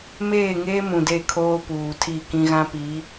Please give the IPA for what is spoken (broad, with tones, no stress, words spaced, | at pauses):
meː˦˨ŋeː˦ mũ˨de˦˨kʰoː˦ puː˨tʰi˦˨kĩ˦ ɣã˦pi˨˦